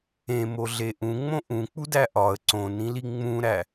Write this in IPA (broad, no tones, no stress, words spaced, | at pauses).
ẽmoɮe ʔũŋ͡mõ ʔũk͡pudæ ʔɒə̯ ǀõnĩli ŋ͡mũɾæ